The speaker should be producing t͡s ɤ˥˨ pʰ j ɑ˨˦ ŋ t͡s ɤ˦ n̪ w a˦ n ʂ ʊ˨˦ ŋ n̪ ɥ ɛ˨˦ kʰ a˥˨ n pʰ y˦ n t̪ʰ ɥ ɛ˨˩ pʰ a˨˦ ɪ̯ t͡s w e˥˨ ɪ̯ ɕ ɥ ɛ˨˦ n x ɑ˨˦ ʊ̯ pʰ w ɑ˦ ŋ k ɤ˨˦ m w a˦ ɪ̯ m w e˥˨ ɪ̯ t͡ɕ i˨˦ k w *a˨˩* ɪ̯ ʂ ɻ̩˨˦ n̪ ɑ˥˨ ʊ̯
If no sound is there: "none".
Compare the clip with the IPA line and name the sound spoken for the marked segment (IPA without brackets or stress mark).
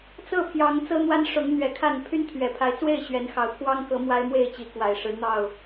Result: a˨˩